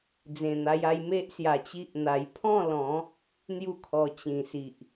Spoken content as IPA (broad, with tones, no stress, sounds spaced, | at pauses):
d͡z ẽ˨˩ n̪ a˧ j a˧ j m e˦ ʔ s j a˧ t͡ɕ i˦ ʔ n̪ a˧ j pʰ ɔ̃˥˧ l ɔ̃˨˦ | n̪ j u˥˧ kʰ ɔ˧ t͡ɕ ĩ˨˩ s i˨ ʔ